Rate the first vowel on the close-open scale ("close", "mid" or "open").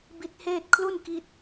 close